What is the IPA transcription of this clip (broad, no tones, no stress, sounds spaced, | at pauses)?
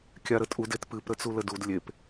kʲ a ɾ ə tʼ u d e t p ɨ p ɾ ə t͡s u l ə d u d lʲ e p